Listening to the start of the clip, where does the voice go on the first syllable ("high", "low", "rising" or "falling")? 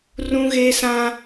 high